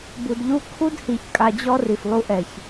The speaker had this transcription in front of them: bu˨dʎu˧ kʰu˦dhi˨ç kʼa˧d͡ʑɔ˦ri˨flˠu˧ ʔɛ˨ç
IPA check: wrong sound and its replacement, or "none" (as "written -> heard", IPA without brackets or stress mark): none